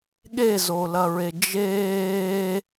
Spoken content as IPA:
ɠ e z o l ɐ ɹ e d͡ʒ eː

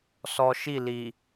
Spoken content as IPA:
s ɔ˨ ʃ i˦˨ l i˨

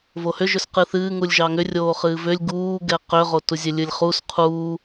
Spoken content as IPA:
v o h ʏ ʒ ʏ s q ɨ θ ɨː ŋ u lʲ ʒ ɑ ŋ ʏ rʲ oː χ ɨː v ʏ lʲ ɡ uː ɡ ɛ q ʏ ʁ o t u zʲ e lʲ ɨ lʲ χ u s qʰ uː

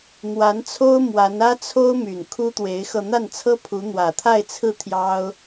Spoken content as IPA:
n̪ w a˧˥ n t͡sʰ o˥ ʊ̯ m w a˧˥ n ä˥ t͡sʰ o˥ ʊ̯ m y˨˩ n kʰ u˥ t̪ w e˧˥ ɪ̯ x ɤ˧ n̪ a˥˩ n t͡sʰ ɤ˥ pʰ u˧˥ n̪ w ä˨˩ t̪ʰ a˥˧ ɪ̯ t͡sʰ ɹ̩˥˩ t̪ʰ j ɑ˥ ʊ̯

